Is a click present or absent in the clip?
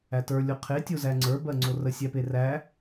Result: present